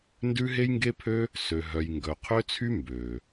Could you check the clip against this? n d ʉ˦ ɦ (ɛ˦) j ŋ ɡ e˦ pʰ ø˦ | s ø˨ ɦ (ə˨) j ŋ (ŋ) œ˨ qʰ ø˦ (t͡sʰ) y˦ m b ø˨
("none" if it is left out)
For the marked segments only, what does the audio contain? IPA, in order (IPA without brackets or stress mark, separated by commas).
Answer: e˦, œ˨, ɡ, t͡sʰ